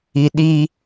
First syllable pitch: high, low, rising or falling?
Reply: low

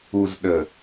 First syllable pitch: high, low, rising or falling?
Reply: low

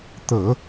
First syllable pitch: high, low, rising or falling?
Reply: low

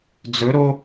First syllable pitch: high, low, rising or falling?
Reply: rising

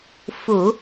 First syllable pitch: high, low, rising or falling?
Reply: low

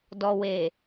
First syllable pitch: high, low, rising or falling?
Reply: low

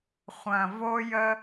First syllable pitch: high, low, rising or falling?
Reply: low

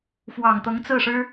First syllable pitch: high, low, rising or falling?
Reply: low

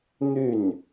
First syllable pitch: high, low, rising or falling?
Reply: falling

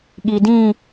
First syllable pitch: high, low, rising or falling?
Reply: low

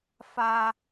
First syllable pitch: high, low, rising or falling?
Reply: high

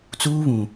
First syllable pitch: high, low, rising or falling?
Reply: high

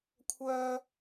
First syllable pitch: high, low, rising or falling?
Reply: high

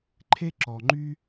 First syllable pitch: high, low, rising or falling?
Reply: high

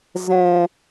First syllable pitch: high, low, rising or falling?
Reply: low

